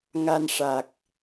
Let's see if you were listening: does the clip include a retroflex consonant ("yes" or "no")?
yes